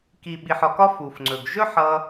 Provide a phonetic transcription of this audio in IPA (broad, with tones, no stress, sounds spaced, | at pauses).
k i˨ ɓ i˨ ħ ɒ˨ k ɒ˦ f u˨ f ŋ͡ǀ ɵ˨ ɡ ʒ ɵ˦ ħ ʌ˧